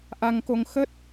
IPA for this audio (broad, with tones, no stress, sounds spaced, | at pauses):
ʔ a˧ ŋ k o˧ ŋ x ə˦˥ t̚